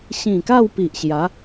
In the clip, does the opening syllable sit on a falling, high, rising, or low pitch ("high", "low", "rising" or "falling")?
low